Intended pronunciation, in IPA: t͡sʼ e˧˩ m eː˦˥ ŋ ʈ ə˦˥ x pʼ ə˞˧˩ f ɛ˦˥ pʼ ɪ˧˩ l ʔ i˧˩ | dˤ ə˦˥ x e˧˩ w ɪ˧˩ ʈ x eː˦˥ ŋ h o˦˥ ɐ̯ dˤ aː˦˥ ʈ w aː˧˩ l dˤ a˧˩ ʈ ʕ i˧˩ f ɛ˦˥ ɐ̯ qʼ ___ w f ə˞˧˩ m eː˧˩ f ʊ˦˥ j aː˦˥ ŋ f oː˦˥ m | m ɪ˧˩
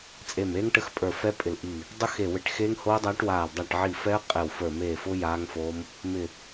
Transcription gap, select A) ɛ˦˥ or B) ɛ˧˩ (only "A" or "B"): B